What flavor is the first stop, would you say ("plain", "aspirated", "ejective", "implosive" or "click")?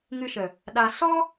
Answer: implosive